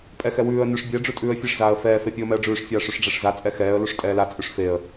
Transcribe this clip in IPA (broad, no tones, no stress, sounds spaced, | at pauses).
pʼ ɛ x ɛ w ʉː ə̯ n ʉ ʂ bʲ ɛ ɖ͡ʐ ʉ tʼ ʉː ə̯ fʲ e ʂ z aː ə̯ f ɛː f e pʲ u ə̯ m ɛ ə̯ ɖ͡ʐ ʉː ʂ fʲ aː ʂ ʉ ʂ ɖ͡ʐ ɛ ʂ z a t͡sʼ ɛ x ɛː ə̯ l u ʂ tʼ ɛː l a t͡sʼ ʉ ʂ f e ə̯